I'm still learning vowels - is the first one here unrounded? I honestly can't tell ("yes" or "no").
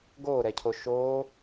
no